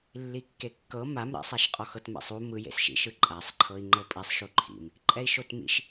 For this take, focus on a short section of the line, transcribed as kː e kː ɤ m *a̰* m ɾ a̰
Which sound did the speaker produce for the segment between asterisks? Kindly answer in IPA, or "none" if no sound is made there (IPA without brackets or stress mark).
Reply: a